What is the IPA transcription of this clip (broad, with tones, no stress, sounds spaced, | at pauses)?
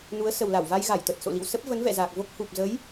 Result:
n u˨˦ ə̯ s ə˨˩ w l a˧˩ w v a˧ j ɣ a˧˩ j t̪ ə˨˩ t̚ s o̰˧˨ l ḭ˧˨ w s ə˦˥ p̚ v ə˨˦ n v ɛ̰˧˨ z aː˨˩ k̚ v o˦˥ k̚ h u˨˩ p̚ z ə˨˦ j